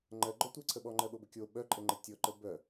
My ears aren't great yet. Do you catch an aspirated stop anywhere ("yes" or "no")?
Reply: yes